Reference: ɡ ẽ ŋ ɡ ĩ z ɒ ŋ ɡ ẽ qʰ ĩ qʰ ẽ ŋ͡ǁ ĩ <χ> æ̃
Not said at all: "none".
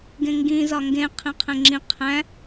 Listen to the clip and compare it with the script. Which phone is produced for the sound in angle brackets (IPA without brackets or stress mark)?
qʰ